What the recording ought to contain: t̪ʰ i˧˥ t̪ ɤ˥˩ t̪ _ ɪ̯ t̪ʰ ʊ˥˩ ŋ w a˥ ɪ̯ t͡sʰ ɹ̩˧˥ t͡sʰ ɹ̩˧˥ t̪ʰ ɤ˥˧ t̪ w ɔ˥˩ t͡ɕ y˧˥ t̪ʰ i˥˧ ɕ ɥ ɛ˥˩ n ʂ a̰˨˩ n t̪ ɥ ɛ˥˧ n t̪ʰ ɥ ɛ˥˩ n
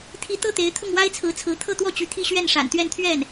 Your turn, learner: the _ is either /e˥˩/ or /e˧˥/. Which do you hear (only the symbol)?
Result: e˧˥